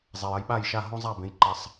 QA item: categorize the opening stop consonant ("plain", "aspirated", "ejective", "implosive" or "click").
implosive